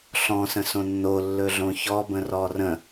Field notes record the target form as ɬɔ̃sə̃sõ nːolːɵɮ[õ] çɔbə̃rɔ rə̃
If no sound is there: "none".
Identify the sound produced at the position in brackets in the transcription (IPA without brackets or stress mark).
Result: õ